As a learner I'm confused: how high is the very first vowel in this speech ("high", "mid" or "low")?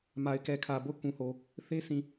low